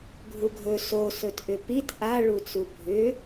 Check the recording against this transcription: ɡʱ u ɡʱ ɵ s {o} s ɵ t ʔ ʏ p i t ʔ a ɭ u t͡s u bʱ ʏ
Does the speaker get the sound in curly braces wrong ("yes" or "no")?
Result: no